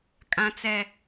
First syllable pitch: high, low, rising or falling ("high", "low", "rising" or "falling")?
high